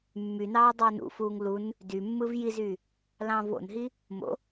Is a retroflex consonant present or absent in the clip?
absent